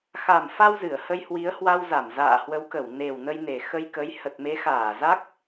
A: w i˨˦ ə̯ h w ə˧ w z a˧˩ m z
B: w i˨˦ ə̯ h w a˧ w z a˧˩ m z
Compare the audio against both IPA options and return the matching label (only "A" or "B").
B